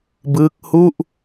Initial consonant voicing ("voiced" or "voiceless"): voiced